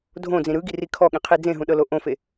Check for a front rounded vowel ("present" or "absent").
absent